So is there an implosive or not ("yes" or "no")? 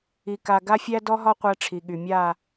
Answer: yes